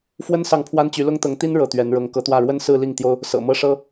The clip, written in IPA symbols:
f w ə˥ n s ɑ˥˩ ŋ pʰ w a˥ n t͡ɕ y˧˥ l ʊ˥ ŋ t̪ ɤ˧˥ ŋ t̪ i˥ n ɻ ɤ˥˩ t̪ ɥ ɛ˧˥ n ɻ ɤ˧˥ ŋ k ɤ˧˥ t̪ w ä˥˩ ɻ w ə˥ n s ɹ̩˥˧ l i˥˩ ŋ t̪ j o˥ ʊ̯ | s ɤ̰˨˩ m ɤ˥˩ ʂ ɤ˥

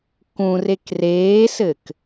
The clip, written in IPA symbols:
k ũ r e k r eː s ɘ k

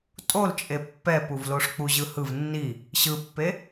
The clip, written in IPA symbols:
tʼ o l t͡ʃʼ e pː ɛ p u v l o ʂ k͡p u ʑ ɯ h ɯ v nː i | ɕ ɯ pː e

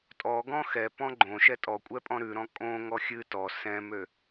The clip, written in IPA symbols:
tʼ ɔ ɡ ɔ̃ x ɛ p ɔ̃ ɡ͡ǃ õ ʃ ɛ tʼ ɔ kʷʼ ɛ pʼ ɔ̃ ɾ ʉ ɾ ɔ̃ kʼ õ ŋ ɔ xʲ ɨ t ɔ s ɛ̃ m ø

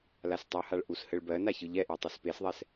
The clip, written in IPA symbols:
l a s tˤ u h a ɭ ʔ u s h ɘ ɭ b ɜ n a ç ɯ ʎ ɛ ʔ e tˤ i s p e s ðˤ ɛ s

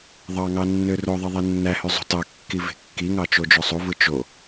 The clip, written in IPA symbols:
ðˤ ɑ ŋ ɑ nː ø r o ðˤ i ðˤ e nː æ h y zˤ ṳ t ɑ kː i v e̤ kː i ŋ ɑ t͡ʃ o d͡ʒ o sˤ u v ɯ t͡ʃ o

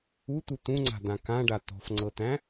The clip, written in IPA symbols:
u t̪ u t̪ ũ ŋ͡ǀ a̤ d̪ ã k ã ɖ a t̪ ɔ̤ f ŋ͡ǀ ɤ t̪ æ̃

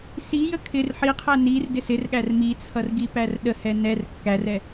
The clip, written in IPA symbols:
s i j ə kʰ ɪ r ħ i qʰ æ n i r d ɪ s ɪ r ɠ æ r m i t͡sʰ ʌ r ɡ i p æ r ɗ ə h ɛ n ɛ r kː æ r ɛ

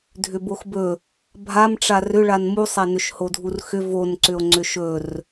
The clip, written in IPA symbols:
dʱ ʏ b o x b ɵ | bʱ a m ʈ͡ʂ a r ʏ ɭ a n m u sˤ a n ʏ ʃ h o dʱ u r x ʏ v o n ǀ ʏ o̯ ŋ͡ǀ ʏ ʃ ɵ r

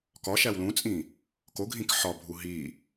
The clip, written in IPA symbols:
k ɒ ʃ æ w l ũ t͡sʼ ĩ | k o ɡʱ ĩ k ħ ɒ bʱ u ɦ i

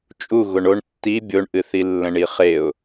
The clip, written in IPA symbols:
t͡ʃʼ u ɣ o ɳ o ɳ tː i bʲ o ɳ ʔ ɨ θ i lː ə̃ ɳ i χ e ʊ̯

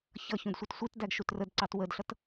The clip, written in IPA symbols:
ç ʌ ç ũ d sʷ ʌ t sʷ i t d æ ɡ ʃ u t r ə d ǀ ɑ t w ə d ɬ ʌ t

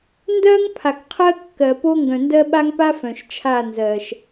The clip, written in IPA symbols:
n d ɜ˦ ŋ pʰ a˨ k qʰ ɜ˦ kː ɜ˨ p o˦ ŋ ɡ œ̃˨ n d ɜ˦ ɓ a˦ ŋ p a˦ f œ̃˨ ʃ t͡ʃʰ a˦˨ n z ɜ˨ ʃ

